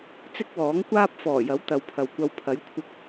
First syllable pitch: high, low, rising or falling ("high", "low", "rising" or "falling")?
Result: high